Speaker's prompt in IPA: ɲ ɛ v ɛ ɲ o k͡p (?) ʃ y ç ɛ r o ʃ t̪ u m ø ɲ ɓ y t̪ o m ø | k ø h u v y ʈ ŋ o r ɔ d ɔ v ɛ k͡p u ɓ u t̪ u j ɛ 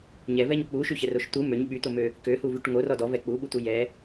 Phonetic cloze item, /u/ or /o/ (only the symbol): u